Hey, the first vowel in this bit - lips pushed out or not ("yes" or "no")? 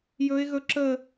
yes